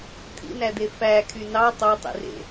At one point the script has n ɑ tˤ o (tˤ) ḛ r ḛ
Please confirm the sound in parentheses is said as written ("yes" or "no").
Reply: yes